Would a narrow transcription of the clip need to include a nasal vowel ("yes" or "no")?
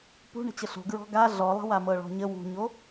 no